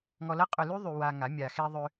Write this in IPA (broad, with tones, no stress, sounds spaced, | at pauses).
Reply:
ŋ ɔ˧ l ɐ˦ qʼ ʊ˧ l y˦ ðˤ y˧ w a˧ ŋ a˨˦ mʲ a˨ x e˧ ðˤ ʏ˧